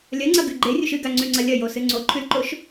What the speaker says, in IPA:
lʲ ɐ ŋ͡ǀ ɐ ɡ ʉ ɡ͡ǃ e rʲ u ʃ ɨ ɡ a ŋ͡ǀ ʉ ŋ͡ǀ ɐ lʲ ɐ j o s ɨ ŋ͡ǀ o ǃʰ ʉ l ǃ o ʃ

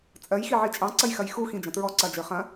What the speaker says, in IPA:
t͡sʼ ɜ j x i ʕ i t͡ʃʼ ɑ̃ ǀ ɐ j x ɐ j x u x ĩ d͡ʒ ɐ̃ t ɹ ɔ ǀ ɐ d͡ʒ ə˞ χ ɐ̃

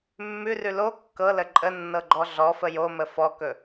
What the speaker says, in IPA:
mː ʉ r ʉ l o kː ɤ l ə ǃʼ ə nː ɤ ɡ͡ǃ ɔ ɮ ɔ f ə j o m ə f ɔ k ɵ

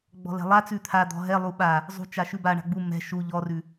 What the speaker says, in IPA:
ɡ͡b ɔ̤ l ɛ̤ lˠ a t͡s ʉ t̪ʰ a d̪ ɔ̤ ɦ ɛ lˠ u ɓ a | zˤ ṳ t͡ʃ a ʃ ʉ b a ɳ a̤ ɡ͡b u m ɛ̤ ʃ u ʎ ɔ r ʉ

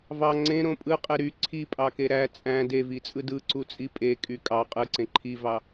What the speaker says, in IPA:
v ɑ ŋ͡ǀ ẽ ɾ õ pʼ ɯ qʼ e ɾ y ǀʰ i pʼ ɑ k e ɾ æ t͡sʼ æ̃ d e v i t͡sʼ ɯ d ɯ ǀ u t͡sʼ i pʼ e kʼ y kʼ ɑ qʼ ɯ ǀ ẽ ǃʰ i v ɑ

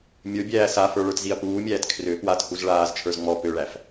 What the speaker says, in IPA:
mʲ ə˞ bʲ æː s a f ə˞ ɭ ə˞ t z i ɐ̯ p uː mʲ æː t kʰ r ø p w a t h u z ɭ aː z t͡ʃʰ ə˞ z ŋ͡m ɔ p ø ɭ æ f

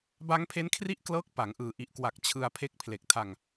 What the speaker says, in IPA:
b a˦˥ ŋ pʰ e˦˥ n kʰ r i˥˩ ʔ k l ɤː˦˥ k̚ p a˩˦ ŋ ʔ ɯː˨˩ ʔ i˨˩ ʔ k w a˨˩ k̚ t͡ɕʰ ɯ˧ a̯ pʰ e˦˥ k̚ pʰ l e˨˩ k̚ tʰ a˧ ŋ

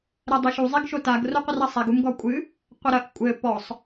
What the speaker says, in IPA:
ɾ ɛ dˤ ɛ ʃ u zˤ i ɡ ʃ o t a ɡ r o qʷ ɨ r ɐ sˤ ɛ ɡ u m ɡ ɔ kʷʼ ɨ | qʷ ɐ ɾ ɐ ʔ kʷʼ ɘ p ɔ sˤ

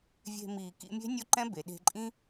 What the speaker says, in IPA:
vʲ e̤˧ m iː˨ k ḭ˧ mʲ e̤˦ nʲ ʊ˦ ǃ ɛ̃˦ b e˨ ɗ e̤˧ ǃʼ ĩ˦

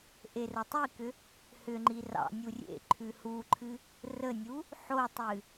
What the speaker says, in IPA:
ʔ e r ə tˤ i k ʏ | h ʏ ŋ͡ǃ i r ɑ̰ nʲ u rʲ ḛ ǃʰ ʉ h u ǃʰ ɨ | r ə nʲ u | ħ o tˤ ɨ

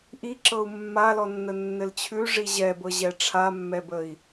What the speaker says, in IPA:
ʔ i ǁ ɤ u̯ mː a l ɔ nː ə nː ɘ l t͡ɕʰ ʉ ʐ i ʑ ɛ b ɤ ʑ ɛ ʈ͡ʂʰ a mː ɛ b ə i̯

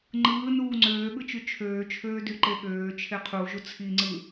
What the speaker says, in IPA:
ŋ͡ǃ ɯː n uː ŋ͡ǀ øː ɠ ɯ t͡ʃ y t͡ʃʰ øː t͡ʃʰ øː d y ǃ e ɠ øː t͡ʃʰ e qʰ u ʒ u t͡sʰ i ŋ͡ǀ ɯ

